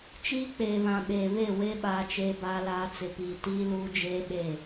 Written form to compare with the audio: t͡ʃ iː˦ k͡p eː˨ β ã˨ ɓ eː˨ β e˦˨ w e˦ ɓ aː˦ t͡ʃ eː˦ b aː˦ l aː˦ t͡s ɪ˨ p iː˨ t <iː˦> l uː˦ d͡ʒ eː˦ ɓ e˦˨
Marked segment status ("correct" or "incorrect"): correct